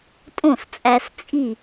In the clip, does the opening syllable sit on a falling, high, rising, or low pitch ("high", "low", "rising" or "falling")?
falling